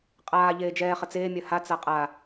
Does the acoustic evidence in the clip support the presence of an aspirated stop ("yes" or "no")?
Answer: no